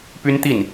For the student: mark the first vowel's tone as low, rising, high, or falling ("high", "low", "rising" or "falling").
high